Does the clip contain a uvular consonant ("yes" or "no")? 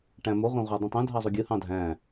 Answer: yes